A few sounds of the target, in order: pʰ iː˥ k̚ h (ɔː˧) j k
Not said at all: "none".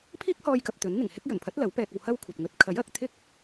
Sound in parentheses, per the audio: ɔː˧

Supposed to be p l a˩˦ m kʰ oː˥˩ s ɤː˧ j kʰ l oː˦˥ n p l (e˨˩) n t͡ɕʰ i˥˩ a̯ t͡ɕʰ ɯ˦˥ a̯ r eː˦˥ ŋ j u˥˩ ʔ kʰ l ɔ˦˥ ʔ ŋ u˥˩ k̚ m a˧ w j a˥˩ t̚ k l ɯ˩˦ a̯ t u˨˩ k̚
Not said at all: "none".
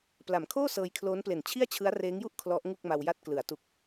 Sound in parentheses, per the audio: e˨˩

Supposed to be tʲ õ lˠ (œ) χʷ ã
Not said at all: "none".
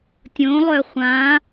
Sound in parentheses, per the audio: œ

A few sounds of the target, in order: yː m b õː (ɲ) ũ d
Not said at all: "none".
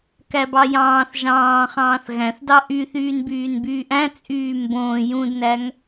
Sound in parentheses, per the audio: j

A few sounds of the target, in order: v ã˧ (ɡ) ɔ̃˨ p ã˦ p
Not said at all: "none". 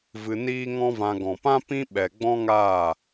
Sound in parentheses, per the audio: ɡ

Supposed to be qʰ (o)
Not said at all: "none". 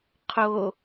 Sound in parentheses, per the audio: o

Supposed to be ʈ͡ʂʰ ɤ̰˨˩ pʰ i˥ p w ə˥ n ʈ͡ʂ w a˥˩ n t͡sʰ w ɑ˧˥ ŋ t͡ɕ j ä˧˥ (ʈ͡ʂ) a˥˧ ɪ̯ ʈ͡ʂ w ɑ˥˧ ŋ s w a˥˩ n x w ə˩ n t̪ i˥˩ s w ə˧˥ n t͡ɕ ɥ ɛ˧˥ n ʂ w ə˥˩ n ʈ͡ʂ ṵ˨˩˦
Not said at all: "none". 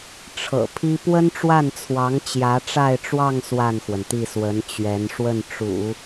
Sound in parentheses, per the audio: ʈ͡ʂ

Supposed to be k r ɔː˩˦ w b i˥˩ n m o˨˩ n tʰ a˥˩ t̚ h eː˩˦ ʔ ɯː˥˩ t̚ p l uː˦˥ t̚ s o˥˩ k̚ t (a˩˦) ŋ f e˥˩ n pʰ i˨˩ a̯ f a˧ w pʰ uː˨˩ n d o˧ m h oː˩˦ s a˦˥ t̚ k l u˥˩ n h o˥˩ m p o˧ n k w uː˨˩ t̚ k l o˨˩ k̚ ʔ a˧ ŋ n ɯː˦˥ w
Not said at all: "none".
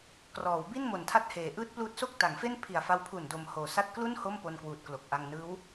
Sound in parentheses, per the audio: a˩˦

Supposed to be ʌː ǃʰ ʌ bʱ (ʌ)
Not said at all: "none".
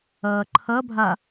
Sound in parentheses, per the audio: a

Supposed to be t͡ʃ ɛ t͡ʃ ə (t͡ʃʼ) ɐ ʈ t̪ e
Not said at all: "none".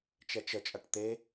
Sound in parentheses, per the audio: t͡ʃʼ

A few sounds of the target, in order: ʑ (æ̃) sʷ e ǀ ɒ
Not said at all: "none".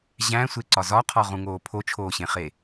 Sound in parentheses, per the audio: æ̃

